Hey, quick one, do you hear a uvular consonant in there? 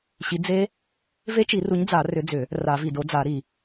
no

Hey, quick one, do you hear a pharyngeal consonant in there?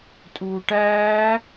no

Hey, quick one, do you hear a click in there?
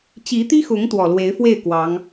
no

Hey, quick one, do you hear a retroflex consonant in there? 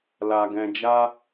no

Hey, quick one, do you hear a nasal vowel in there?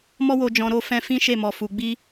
yes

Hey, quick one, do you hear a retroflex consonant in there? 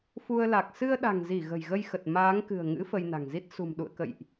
no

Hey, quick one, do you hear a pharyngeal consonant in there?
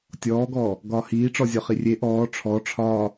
no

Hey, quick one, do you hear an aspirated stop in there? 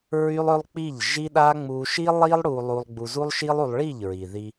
no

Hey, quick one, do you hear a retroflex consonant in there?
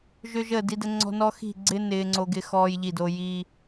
no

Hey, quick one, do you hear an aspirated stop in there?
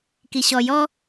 no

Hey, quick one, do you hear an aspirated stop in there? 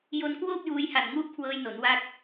yes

